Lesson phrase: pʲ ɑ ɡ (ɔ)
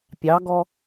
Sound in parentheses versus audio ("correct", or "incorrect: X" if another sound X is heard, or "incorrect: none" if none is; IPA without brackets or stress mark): correct